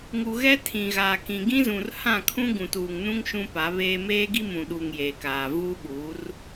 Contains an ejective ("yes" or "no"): no